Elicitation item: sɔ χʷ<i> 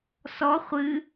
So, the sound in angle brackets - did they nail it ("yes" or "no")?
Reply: no